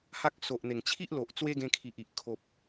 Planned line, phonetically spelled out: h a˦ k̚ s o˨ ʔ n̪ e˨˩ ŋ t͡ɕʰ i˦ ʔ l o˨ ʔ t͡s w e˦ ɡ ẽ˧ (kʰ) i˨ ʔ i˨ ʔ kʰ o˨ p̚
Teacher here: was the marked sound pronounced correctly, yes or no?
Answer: yes